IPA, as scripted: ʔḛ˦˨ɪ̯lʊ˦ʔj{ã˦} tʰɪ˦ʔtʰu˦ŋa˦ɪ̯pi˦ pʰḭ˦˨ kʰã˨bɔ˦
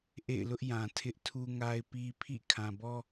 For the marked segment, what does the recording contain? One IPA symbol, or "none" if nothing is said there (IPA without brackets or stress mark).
ã˨